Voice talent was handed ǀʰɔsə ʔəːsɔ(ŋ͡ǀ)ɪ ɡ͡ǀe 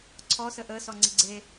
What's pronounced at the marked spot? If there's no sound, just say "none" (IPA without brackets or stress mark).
ŋ͡ǀ